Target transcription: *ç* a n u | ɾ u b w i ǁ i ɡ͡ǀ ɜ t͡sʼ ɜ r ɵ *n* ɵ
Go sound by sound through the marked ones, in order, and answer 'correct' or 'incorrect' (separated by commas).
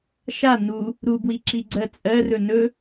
incorrect, correct